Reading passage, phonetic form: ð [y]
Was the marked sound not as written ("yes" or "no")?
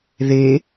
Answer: yes